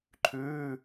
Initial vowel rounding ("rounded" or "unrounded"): rounded